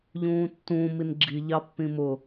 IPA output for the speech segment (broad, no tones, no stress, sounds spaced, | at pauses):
ʎ ũː tː ũː m i n ɡ͡ǁ i ʎ ɑ pː ĩ m ʊ